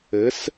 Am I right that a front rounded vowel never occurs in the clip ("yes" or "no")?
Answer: yes